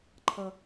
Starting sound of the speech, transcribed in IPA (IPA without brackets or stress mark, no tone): ǃʰ